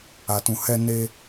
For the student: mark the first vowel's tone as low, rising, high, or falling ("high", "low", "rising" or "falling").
low